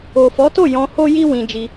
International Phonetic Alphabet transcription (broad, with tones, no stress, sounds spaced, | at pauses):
o˨ f ɔ˨˦ t o˦˨ j ɔ̃˧ h o˦ j i˦ w ĩ˧ d͡ʒ i˧